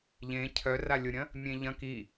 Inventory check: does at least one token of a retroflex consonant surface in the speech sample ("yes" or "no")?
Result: no